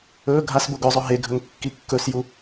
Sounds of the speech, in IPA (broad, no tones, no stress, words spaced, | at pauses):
ɵ ɡʱasboɡ ɵzˤɵ ɦeɡʱɵŋ kːikːɵsju